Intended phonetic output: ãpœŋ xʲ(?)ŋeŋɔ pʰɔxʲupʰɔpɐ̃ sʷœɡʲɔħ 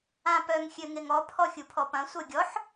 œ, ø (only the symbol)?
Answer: ø